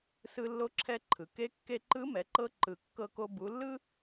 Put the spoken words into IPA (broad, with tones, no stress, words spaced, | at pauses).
sɯ˧lːo˧˥ǁʰɛ˧ ǃʰɯ˩ke˧˥ kːe˧ǃɯ˧˥mɛ˩˧ǃɤ˧ ǃɯ˩kːɤ˧ko˧ bu˩˧lːɯ˥